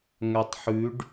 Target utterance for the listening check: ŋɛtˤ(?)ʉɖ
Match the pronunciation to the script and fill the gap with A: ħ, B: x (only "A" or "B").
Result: A